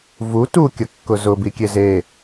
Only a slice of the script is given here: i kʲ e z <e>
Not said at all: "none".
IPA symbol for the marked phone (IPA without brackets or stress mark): e